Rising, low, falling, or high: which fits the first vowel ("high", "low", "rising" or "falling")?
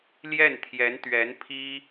falling